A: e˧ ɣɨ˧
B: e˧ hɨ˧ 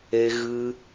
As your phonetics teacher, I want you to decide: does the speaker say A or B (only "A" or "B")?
A